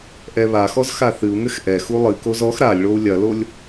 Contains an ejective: no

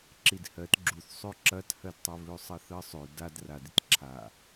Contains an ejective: no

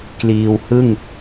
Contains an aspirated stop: no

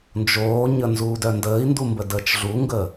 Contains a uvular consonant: no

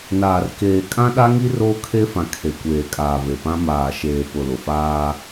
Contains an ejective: yes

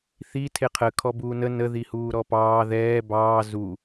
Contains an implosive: no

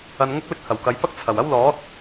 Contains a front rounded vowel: no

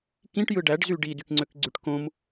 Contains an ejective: no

